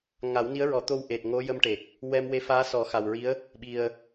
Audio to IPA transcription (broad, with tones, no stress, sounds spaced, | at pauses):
ŋ a˨˩˦ w n i˧˥ ə̯ ɹ ɔ˨˩˦ t̪ o˧ w ʔ e˨˩ t̚ ŋ o˧˥ j ə˧ m ʈ e˨˩ k̚ | w ɛ˧ m w e˧˥ f aː˧˥ s ɔ˨˩˦ x a˨˩ w ɹ i˧˥ ə̯ | ɓ i˨˩ ə̯